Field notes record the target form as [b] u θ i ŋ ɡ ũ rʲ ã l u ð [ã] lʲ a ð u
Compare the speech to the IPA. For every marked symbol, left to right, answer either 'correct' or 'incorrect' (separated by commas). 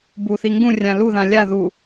correct, correct